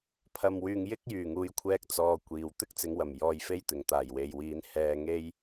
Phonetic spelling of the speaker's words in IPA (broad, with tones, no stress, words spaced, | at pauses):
pʰɐ˨mwyː˨ŋ jɪ˥k̚jyː˨˩ŋuː˨˧jkʷʰɛː˧k̚ t͡sɔː˧kʷiː˨w t̪ɪ˥k̚t͡sɪ˨˧ŋwɐ˨˩m jɔː˧jfe˥jt̪ɪ˨˩ŋ t̪aː˨˩j we˨j wiː˨˧n hɛː˧ ŋe˥j